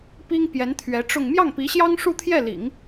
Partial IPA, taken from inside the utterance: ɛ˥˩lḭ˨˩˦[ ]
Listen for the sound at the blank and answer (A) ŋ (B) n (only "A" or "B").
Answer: A